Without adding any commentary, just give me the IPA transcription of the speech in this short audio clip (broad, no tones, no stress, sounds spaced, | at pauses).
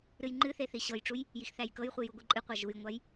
ɾ ɨ j ŋ͡ǃ ɨ θ e θ i ɕ ɤ j ʈ͡ʂ u j | j i x θ æ j k ɤ j χʷ i j u ɡʷ i ǃʼ ɨ qʷ a ʒ u j ŋʷ a j